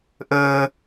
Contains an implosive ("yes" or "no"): no